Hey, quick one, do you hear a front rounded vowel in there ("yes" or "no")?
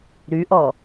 yes